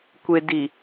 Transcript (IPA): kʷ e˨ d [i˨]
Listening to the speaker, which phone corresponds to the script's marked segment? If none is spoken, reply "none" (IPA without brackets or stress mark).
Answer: i˨